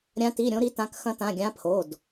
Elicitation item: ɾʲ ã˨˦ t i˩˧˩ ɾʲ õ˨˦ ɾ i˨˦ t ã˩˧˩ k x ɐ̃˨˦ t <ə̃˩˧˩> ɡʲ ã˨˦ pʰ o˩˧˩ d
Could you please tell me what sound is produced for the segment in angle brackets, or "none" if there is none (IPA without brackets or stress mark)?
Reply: ã˩˧˩